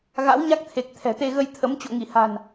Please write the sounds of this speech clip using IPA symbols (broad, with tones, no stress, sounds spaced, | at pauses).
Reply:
ɣ a̰˧˥ w ɲ a˦˥ k̚ t̪ʰ e˨˩ k̚ t̪ʰ ɛ̤˨˩ t̪ e˧ ɣ ə˧ j t̪ʰ ə˨˦ m t͡ɕ o̰˧˨ ŋ i˧˩ h a̤˨˩ n